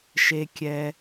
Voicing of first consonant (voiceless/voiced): voiceless